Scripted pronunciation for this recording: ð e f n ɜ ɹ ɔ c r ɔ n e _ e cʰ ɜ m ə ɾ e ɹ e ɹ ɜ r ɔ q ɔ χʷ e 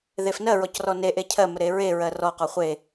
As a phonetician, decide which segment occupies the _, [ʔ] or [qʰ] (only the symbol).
ʔ